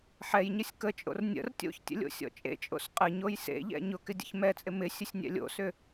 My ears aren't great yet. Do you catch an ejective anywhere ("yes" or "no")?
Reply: yes